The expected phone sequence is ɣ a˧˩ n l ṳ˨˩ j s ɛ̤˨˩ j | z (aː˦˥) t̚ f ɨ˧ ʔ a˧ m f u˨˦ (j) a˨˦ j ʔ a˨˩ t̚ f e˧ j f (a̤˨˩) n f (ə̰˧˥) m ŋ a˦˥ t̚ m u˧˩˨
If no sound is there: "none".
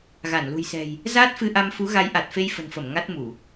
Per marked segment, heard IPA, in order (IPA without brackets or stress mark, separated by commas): aː˦˥, ɣ, ə̤˨˩, ə˧˩